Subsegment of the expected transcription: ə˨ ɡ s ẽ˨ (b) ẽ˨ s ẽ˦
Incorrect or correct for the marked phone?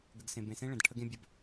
correct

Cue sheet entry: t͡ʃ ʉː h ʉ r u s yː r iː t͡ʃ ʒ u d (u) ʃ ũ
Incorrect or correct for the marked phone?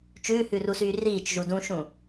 incorrect: ũ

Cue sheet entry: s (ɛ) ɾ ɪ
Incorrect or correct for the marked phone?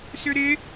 incorrect: ʏ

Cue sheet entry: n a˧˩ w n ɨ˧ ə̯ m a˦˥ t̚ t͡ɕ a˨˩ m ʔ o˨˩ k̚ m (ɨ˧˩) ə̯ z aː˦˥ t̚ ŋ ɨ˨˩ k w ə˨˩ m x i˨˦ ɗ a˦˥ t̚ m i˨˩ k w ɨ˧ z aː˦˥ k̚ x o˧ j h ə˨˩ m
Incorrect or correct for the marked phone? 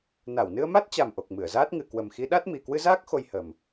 correct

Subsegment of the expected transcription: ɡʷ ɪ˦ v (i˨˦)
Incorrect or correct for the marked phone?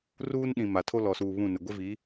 correct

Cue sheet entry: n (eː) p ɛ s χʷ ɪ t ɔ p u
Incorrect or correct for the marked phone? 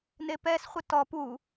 incorrect: e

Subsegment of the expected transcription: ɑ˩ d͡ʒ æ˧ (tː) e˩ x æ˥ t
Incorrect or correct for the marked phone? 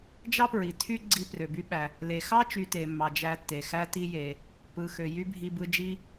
correct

